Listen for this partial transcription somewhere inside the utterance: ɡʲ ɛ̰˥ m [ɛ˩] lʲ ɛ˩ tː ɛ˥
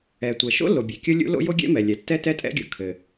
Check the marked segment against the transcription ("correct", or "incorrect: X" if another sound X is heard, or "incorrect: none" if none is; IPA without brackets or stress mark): correct